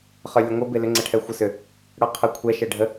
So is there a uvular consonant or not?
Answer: yes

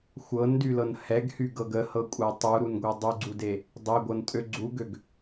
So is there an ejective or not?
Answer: yes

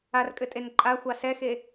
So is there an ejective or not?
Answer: yes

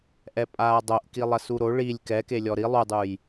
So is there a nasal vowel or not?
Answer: no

